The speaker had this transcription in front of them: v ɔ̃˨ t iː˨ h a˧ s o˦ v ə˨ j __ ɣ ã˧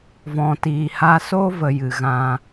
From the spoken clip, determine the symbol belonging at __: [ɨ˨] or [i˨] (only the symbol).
ɨ˨